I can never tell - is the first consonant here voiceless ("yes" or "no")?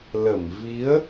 no